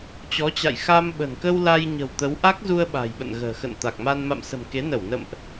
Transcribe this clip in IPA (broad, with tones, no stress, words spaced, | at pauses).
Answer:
t͡ɕɔ˨˦t͡ɕa̰˧˨j xa˧m ɓə̤˨˩nkə˧w la˧j ɲə̤˨˩wt̪ə˨˦wʔa˦˥k̚zu˧ə̯ ɓa̤˨˩jɓə̰˧˨nɣə̤ː˨˩xə̰˧˨n t̪a˨˩k̚ma˧n ma̰˧˨msə̤˨˩m ke˨˦nə˧˩w nə̰˧˨mʔ